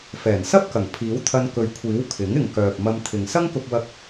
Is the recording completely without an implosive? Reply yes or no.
yes